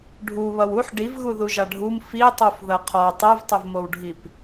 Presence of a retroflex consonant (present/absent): present